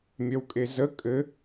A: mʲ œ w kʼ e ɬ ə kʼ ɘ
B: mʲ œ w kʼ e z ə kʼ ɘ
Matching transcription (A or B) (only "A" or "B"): B